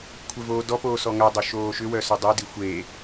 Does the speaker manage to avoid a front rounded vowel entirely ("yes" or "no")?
no